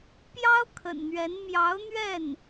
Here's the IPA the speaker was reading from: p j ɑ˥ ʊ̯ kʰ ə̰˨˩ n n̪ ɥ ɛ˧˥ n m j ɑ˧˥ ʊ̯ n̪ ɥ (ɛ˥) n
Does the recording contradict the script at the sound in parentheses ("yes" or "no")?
yes